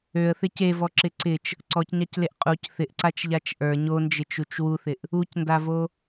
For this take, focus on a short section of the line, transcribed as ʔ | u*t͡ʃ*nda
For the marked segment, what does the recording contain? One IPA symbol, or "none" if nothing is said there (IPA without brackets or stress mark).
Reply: c